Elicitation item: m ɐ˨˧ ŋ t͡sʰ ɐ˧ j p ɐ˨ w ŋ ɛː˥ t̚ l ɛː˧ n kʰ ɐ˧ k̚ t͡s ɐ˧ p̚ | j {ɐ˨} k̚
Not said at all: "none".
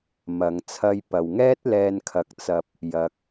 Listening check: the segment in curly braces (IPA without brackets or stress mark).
ɐ˨